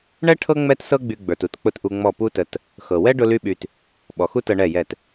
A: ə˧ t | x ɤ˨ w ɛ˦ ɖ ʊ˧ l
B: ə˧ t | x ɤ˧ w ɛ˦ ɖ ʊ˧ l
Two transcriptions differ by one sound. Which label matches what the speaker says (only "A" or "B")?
A